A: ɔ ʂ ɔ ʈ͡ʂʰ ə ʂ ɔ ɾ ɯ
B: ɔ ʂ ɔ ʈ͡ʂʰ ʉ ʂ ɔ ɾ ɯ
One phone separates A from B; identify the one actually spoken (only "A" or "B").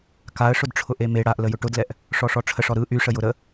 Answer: A